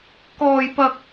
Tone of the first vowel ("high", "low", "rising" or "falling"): high